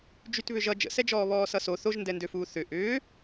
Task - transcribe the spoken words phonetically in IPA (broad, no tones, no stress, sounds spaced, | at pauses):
d͡ʒ y t β ʏ ʒ ʌ d͡ʒ ə̰ s ɛ d͡ʒ ɔː β ɔː s ʌ s o θ o ʒ n d ɛ n d ø f uː θ ʏ ʔ ʏː